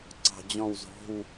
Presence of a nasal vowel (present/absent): present